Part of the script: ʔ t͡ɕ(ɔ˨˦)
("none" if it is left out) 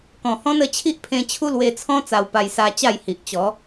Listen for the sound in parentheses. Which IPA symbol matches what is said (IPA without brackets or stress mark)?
ɔ˨˦